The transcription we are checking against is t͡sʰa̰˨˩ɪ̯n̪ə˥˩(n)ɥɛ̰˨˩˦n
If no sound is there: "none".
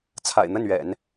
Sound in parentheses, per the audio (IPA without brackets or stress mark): n